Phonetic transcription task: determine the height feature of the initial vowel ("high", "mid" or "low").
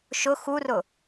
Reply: high